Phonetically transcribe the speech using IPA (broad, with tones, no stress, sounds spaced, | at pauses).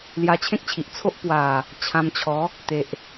l j a˧ t͡ɕʰ ẽ˦ k̚ t͡ɕʰ i˨ ʔ t͡sʰ o˦ ʔ p w a˨˩ | t͡ɕʰ ã˧ m t͡ɕʰ ɔ˨˦ | t̪ e˨ ʔ